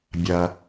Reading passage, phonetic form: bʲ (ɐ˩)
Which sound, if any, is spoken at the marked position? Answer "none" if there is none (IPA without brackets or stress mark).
ɐ˩